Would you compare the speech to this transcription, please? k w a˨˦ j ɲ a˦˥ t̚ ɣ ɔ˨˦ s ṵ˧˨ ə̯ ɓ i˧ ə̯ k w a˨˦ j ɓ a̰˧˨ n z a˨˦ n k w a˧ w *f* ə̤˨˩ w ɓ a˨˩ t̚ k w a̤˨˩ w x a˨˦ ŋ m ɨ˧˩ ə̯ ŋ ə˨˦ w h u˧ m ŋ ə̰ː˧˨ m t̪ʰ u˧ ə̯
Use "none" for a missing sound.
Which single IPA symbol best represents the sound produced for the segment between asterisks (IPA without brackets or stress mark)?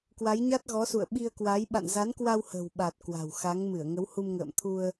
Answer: h